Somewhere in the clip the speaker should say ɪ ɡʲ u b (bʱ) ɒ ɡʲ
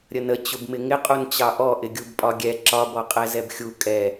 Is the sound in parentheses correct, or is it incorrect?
incorrect